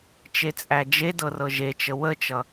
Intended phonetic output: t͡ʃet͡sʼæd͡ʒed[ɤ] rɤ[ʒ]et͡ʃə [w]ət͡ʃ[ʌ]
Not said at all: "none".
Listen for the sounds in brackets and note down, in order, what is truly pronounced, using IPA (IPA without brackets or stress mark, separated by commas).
ɤ, ʒ, w, ʌ